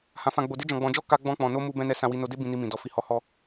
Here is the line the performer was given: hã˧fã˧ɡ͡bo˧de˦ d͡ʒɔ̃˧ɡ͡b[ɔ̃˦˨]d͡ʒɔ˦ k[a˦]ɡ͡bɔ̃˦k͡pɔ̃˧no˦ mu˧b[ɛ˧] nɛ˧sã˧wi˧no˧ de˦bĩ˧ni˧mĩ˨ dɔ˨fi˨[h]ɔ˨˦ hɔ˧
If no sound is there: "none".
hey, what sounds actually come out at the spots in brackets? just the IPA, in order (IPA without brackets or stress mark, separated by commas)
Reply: ɔ̃˧, a˦, ɛ̃˧, h